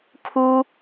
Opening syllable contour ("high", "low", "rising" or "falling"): high